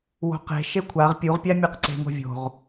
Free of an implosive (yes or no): yes